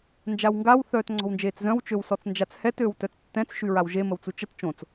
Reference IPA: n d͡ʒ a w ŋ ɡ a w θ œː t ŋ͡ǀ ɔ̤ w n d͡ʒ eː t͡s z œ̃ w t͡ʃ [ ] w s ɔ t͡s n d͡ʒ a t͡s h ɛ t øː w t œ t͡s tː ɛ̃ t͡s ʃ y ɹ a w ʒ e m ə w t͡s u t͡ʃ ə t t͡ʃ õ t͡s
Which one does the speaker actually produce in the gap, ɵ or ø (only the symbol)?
ø